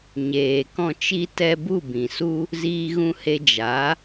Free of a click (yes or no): yes